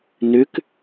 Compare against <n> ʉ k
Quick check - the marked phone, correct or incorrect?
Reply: correct